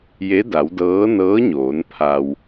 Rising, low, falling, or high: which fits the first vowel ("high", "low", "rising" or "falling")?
rising